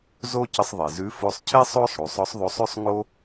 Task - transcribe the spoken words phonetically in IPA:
z o˥ c ə˧ sˤ ðˤ e˩ z ʉ˧˥ f o˧ sˤ cʰ e˥ sˤ o˥ sˤ ɽ u˩˧ sˤ ɔ˧˥ sˤ ðˤ o˧˥ sˤ ʉ˥ sˤ ŋ o˥

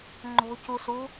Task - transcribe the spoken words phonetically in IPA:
ŋ͡ǃ o̤ c u s u

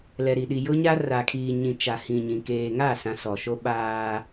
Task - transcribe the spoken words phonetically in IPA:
l ɛ˨ ɾ i˨ ɗ i˨ j ʊ˦ ɲ a˦ r a˨ kʰ iː˨ ɲ ĩ˨ t͡ʃ a˨ h ĩ˨ ɲ ĩ˨ k eː˨ ŋ a˦˨ s ã˨ s ɔ˨ ʃ o˦ ɓ aː˦

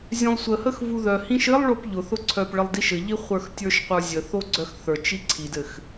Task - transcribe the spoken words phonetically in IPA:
zʲ œ̃ lˠ sʷ ə h ə x v u ð œ h ĩ ʃ ɘ lˠ ɭ o p ʎ ʊ θ ʊ ǀʰ œ p ɭ ə lˠ d i ʃ ɘ ʎ i χʷ ə˞ x tʲ ə˞ ʃ qʷ ə˞ zʲ ə θ o ɡ͡ǀ œ x θ ə˞ t͡ʃ i ǀʰ i d ɘ x

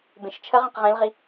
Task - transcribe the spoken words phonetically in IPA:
b ẽ ʃ t͡ʃʰ ə ʁ ẽ q ʁ ẽ l ʁ i

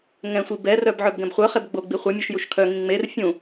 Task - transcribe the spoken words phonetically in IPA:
ŋ ɛ̃ sʷ i b ɛ r œ b ʕ œ b ɡ ɛ̃ b χʷ œ χ e b ɡ͡b o ɡ͡b i χʷ œ mʲ o ʃ j u ʃ kʰ œ ŋ ĩ ŋ͡m e r fʲ ũ

